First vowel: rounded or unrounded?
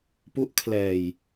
rounded